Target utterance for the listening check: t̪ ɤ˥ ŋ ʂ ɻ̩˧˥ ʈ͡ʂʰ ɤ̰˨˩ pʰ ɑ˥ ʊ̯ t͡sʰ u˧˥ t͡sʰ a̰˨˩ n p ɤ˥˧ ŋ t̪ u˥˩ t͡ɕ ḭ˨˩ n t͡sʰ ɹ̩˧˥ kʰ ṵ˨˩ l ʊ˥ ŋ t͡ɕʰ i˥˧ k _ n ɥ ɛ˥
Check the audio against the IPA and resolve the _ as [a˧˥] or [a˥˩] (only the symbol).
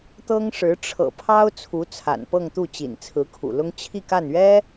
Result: a˥˩